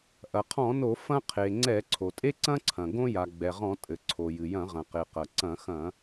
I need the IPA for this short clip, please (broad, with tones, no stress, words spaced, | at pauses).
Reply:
ʔɐ˩qʰɔ̃˧˩˧no˧˩˧ fɐ̃˦qʰe˩ ŋ͡ǀɛ˧˩˧ǀʰo˩tʼe˦ ǀɐ̃˦ǀʰɐ̃˩ ɡõ˦ja˩ɡ͡bɛ˩ʁɔ̃˧˩˧ tʼɘ˩ǀʰo˩jɨ˩jɐ̃˧˩˧ ʁɐ̃˩qe˩ qɐ˩ǀɐ̃˧˩˧xɐ̃˧˩˧